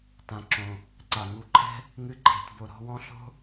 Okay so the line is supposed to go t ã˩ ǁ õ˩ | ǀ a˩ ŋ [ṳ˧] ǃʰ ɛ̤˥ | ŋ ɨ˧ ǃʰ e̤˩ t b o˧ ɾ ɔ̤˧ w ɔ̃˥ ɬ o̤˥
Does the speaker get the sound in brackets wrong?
yes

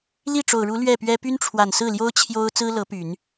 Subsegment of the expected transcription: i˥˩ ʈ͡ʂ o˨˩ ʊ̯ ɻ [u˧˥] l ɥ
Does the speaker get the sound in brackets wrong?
no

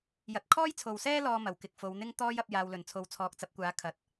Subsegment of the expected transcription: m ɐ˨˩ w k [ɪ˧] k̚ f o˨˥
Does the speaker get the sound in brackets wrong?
no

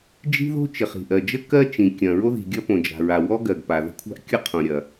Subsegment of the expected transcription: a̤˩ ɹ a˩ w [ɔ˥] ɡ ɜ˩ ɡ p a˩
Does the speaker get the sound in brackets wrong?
no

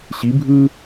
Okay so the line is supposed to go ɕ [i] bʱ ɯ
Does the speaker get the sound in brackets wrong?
no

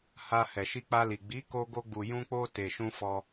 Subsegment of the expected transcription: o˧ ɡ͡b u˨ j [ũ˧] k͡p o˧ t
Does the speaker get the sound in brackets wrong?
no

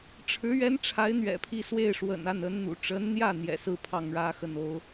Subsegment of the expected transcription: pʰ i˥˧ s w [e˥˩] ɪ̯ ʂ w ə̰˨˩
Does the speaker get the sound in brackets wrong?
no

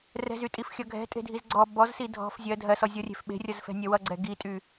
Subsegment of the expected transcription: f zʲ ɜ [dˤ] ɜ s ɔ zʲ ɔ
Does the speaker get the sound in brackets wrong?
yes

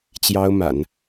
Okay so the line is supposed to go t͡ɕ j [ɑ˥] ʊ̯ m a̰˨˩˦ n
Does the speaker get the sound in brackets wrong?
no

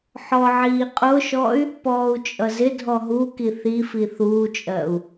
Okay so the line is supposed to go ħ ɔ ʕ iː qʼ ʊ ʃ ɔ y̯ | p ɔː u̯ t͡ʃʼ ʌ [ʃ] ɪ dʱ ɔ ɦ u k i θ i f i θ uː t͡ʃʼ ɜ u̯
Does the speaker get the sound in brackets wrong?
yes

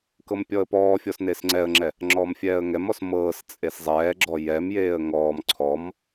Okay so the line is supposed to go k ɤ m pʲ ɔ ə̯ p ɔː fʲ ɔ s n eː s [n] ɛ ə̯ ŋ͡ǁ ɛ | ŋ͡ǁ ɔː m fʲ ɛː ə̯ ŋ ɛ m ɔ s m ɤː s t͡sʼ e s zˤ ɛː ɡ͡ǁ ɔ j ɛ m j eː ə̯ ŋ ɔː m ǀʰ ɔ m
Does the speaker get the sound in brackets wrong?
yes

